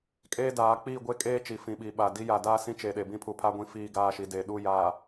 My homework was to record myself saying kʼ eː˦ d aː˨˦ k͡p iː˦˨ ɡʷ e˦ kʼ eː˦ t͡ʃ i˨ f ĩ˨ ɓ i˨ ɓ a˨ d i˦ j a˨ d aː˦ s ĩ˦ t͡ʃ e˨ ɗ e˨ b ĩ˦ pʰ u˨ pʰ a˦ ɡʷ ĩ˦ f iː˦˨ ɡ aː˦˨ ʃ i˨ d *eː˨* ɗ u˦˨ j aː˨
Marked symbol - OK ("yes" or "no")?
no